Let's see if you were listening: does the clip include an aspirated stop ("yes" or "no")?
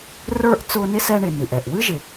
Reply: no